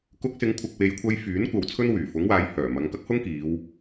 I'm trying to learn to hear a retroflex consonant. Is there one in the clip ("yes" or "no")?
no